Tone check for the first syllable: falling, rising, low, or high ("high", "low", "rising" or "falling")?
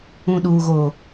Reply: low